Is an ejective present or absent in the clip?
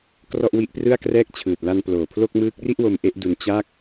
absent